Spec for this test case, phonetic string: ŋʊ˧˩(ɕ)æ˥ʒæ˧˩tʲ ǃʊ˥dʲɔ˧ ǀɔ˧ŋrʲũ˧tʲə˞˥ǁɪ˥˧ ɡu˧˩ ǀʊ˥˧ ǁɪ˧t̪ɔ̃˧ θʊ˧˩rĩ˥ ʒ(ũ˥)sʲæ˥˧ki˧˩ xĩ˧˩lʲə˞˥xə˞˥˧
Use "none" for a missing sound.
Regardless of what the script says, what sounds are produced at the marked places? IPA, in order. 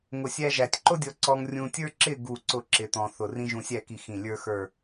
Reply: sʲ, ũ˧

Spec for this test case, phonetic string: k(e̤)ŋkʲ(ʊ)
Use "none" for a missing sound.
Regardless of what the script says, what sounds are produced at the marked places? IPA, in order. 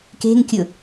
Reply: e̤, ʊ

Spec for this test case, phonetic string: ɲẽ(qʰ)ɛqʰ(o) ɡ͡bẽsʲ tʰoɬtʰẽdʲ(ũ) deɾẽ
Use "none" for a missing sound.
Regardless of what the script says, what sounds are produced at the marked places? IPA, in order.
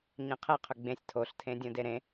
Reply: qʰ, ɵ, õ

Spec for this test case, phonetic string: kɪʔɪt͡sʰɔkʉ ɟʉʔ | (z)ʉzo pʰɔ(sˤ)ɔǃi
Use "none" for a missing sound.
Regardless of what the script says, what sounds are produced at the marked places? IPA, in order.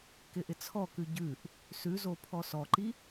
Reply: s, s

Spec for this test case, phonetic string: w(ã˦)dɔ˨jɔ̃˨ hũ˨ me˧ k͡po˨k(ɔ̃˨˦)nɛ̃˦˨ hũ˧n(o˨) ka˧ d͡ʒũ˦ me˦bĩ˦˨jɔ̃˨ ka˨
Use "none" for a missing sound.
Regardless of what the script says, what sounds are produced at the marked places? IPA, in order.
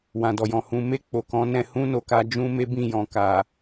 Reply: ã˨, ɔ̃˨˦, o˨

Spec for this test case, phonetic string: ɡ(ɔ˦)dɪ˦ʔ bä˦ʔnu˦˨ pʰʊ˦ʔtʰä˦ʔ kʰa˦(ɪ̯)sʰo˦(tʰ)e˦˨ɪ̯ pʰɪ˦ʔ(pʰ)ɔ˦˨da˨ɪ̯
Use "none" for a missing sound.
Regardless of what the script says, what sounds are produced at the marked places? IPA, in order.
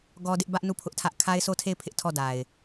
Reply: ɔ˦, ɪ̯, tʰ, tʰ

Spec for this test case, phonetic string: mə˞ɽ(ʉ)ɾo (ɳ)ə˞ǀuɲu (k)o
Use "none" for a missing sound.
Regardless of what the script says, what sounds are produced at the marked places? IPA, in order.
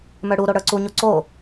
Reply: u, ɽ, ǀ

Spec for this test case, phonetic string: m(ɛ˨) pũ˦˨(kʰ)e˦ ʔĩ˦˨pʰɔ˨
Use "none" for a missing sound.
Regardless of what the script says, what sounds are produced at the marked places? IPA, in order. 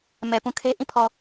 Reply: ɛ˨, kʰ

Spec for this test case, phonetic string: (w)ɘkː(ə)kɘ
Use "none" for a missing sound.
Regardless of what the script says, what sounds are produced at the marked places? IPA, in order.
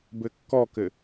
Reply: b, ɔ

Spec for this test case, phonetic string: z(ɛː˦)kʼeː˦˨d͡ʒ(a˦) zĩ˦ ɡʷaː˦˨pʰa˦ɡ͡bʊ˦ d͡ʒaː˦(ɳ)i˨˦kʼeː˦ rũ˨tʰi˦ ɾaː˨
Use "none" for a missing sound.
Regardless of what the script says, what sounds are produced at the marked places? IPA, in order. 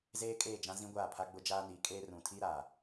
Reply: eː˦, ã˦, n

